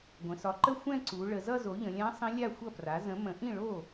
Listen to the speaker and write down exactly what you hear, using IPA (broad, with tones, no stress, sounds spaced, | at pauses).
ɡʷ ə̃˩˧ s ɒ˩˥ ǃ ə˥˧ xʷ ɛ̃˥˧ ǀ u˩˧ ɭ ə˩˧ z ʌ˥˧ z o˩˥ ʎ ə̃˩˧ lʲ ã˧˥ sˤ ĩ˧˥ lʲ a˥˧ xʷ ʌ˥˩ p r a˩˥ z ə̃˩˥ m ə̃˩˥ ʔ ĩ˥˩ ɭ o˥˩